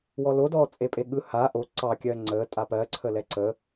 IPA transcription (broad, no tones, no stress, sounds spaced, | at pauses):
w ɔ l o d ɔː t͡sʼ e pʼ e ɠ ɯ h a ʔ o ǀ ɑ kʲ ɜ ŋ͡ǀ əː tʼ a p ɜ ǀʰ ə l ɛ ǀ əː